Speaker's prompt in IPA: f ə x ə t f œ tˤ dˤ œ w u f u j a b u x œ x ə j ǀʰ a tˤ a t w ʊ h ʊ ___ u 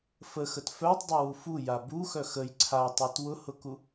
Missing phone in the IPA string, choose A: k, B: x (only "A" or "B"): A